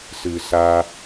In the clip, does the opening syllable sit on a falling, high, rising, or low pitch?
low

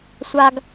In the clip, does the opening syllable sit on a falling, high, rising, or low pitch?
high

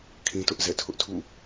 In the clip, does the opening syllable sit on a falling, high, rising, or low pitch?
high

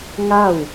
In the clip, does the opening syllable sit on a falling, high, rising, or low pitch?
falling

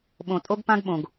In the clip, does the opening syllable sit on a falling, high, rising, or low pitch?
low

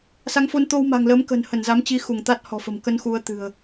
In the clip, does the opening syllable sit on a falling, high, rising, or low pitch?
rising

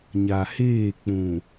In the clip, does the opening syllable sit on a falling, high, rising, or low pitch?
low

